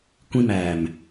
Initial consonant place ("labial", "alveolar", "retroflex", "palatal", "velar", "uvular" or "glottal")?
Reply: velar